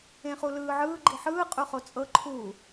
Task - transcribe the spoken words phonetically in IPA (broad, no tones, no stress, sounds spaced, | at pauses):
ẽ χ u l ɯː ʕ ɯː ɡ͡ǃ i ħ ɯː qʼ u χ o t͡sʼ ɤ ǃʰ uː